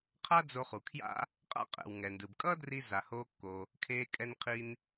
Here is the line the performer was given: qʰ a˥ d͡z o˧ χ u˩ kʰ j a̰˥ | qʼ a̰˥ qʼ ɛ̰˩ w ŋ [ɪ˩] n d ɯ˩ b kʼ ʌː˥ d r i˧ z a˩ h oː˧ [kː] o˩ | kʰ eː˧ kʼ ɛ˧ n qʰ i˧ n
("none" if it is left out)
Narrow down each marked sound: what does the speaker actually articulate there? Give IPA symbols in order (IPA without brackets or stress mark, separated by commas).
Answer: ɛ˩, kː